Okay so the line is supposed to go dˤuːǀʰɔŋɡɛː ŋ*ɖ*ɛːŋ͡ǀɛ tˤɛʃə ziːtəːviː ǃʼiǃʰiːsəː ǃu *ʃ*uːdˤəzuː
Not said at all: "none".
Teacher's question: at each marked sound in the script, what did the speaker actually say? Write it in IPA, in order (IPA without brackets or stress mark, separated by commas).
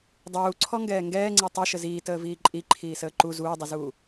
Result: ɡ, z